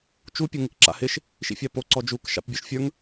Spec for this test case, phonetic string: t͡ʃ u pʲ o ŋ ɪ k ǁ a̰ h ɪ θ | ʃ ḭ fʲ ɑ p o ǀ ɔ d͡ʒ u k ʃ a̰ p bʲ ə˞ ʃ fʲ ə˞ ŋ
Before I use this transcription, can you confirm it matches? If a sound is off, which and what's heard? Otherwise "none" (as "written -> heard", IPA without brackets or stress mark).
θ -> ʃ